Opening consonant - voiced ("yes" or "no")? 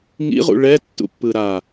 yes